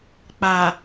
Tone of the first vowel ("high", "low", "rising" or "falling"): low